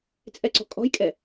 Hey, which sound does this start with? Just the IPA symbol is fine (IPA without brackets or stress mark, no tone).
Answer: t͡sʼ